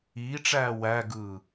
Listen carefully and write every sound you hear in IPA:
iːʈ͡ʂæː wæɡɯː

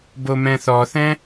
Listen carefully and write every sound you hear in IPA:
bomɛ̃θɔθɛ̃

